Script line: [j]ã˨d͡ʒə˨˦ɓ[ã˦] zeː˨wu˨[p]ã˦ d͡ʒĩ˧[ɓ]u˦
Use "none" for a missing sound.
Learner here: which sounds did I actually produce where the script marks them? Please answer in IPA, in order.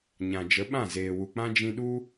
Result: ɲ, ã˦˨, k͡p, ɗ

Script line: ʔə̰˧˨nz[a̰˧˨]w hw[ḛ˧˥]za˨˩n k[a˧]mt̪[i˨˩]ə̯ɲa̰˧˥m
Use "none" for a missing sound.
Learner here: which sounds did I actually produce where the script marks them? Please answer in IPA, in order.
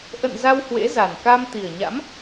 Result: a˧, ḛ˧˥, a˧, i˨˩

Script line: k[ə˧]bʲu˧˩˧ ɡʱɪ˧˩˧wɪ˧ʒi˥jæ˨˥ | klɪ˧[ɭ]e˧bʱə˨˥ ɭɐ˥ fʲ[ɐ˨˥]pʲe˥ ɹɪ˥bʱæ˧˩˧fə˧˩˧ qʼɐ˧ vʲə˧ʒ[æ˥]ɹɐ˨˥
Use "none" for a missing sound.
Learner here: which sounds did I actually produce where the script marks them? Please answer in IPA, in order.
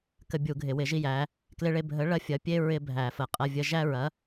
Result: ə˧, ɭ, ɐ˨˥, æ˥

